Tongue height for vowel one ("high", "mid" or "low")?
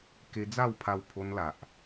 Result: mid